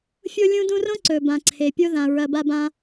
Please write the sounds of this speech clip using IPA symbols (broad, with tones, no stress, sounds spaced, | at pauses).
fʲ o˦ lʲ ũ˦ d ũ˦ r õ˥ ǀ ɵ˩ b ã˩ ǀʰ e˩ pʲ o˦ ð ã˩ ɹ ɐ˨ b a˦ b ã˦